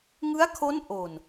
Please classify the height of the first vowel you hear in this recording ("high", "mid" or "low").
high